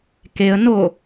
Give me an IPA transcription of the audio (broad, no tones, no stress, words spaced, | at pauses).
keə̯no